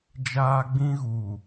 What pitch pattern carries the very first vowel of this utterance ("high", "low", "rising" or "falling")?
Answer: high